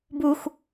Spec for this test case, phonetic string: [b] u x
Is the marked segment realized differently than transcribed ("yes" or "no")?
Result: no